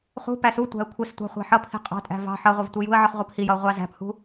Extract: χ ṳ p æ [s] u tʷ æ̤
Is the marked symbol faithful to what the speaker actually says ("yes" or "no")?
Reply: yes